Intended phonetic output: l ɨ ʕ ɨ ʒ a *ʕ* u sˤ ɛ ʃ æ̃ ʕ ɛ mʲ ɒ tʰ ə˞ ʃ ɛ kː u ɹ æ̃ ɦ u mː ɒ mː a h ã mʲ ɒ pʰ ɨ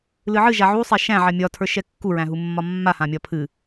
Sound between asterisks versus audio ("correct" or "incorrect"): correct